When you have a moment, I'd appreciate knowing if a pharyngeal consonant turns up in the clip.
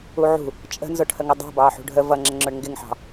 yes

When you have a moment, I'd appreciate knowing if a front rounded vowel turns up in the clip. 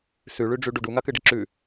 no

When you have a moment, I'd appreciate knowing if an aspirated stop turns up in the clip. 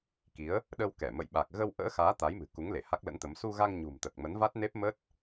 no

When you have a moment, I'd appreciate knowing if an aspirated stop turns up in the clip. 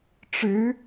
no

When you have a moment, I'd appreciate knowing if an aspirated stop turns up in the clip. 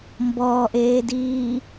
no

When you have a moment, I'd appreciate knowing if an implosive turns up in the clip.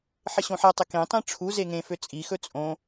no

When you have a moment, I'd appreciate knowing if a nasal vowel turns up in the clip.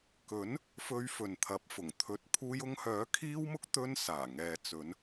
no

